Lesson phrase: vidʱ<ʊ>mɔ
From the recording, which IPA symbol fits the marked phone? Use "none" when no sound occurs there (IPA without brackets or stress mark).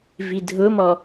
ʊ